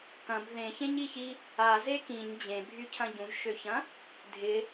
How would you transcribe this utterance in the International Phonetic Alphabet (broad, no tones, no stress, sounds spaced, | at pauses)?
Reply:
k ɐ̃ b ð ẽ ç ẽ ɲ i ç i | a z e k ĩ ɲ d͡ʑ ẽ bʱ y cʰ ɐ̃ ɟ ũ ʒ ʃ ø ç ɐ̃ | dʱ ɪ